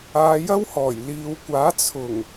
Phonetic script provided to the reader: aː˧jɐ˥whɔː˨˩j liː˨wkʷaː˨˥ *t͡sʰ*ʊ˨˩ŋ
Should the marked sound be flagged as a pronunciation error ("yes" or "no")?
no